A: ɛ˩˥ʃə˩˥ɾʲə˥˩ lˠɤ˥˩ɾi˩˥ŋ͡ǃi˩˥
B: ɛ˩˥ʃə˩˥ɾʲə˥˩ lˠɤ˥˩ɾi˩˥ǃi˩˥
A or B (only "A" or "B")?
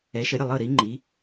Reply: A